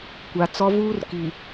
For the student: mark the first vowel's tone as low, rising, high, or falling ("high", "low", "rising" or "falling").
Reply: low